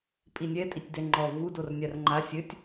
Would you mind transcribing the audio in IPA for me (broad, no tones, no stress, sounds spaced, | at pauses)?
pʼ i nʲ ɛ tʼ i tʲ d ɛ ŋ͡ǃ ɔ v u d o r nʲ a r ŋ͡ǃ a sʲ ɘ tʲ